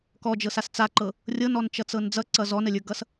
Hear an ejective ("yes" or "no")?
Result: no